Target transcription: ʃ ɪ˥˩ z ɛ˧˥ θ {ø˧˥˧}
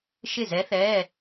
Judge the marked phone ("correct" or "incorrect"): incorrect